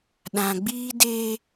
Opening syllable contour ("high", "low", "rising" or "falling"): low